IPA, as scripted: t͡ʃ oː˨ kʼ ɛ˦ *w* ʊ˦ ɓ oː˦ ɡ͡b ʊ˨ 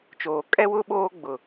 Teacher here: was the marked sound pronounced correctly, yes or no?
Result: yes